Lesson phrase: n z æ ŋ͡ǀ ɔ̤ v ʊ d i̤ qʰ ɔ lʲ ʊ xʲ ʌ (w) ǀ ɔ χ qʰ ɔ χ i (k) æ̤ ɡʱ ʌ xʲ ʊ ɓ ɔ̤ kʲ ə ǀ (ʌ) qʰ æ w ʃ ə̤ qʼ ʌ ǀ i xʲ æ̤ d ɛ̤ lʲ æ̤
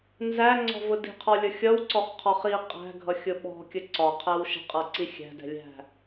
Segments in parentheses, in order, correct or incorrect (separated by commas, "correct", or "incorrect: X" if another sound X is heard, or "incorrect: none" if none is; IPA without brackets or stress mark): correct, incorrect: qʼ, incorrect: ɒ